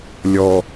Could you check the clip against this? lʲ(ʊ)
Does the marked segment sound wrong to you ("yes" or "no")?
yes